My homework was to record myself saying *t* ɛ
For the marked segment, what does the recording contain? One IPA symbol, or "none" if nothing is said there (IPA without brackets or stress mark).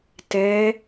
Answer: t